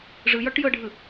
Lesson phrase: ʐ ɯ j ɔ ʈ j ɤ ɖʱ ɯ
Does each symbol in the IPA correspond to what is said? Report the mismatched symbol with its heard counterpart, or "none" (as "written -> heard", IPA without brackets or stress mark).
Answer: none